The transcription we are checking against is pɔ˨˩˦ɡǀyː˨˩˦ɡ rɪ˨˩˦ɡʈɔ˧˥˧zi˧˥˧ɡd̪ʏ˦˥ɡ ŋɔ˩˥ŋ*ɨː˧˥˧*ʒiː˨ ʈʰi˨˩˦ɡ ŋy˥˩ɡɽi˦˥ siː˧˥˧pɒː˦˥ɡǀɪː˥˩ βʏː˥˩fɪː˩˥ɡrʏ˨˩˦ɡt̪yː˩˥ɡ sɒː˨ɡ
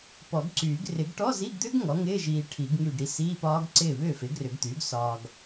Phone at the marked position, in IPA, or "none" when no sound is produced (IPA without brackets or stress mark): ɪː˧˥˧